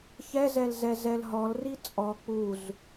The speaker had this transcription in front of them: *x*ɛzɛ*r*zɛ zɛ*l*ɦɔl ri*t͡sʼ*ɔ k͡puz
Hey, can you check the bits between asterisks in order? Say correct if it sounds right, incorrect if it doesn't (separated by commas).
incorrect, incorrect, correct, correct